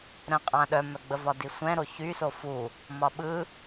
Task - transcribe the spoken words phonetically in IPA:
ɾ ə̃ qʼ ã ɗ œ m œ ɡ͡b ə v ɒ d i sʷ ɛ̃ ɾ o ç y s o f u | m ɒ ɓ ɯ

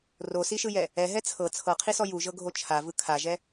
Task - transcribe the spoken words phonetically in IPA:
r o s i ʃ ɯ j ɛ | ɛ ɦ ɛ t͡sʰ ɤ t͡sʰ ɤ qʰ i s ɔ j u ʒ ɤ ɡʱ o t͡ʃʰ a v ɯ kʰ a ʒ ɛ

